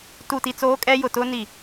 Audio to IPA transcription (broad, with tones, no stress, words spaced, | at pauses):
tu˨ti˨ t͡soː˦kʼɛ˦ jʊ˨tʊ˦ ni˨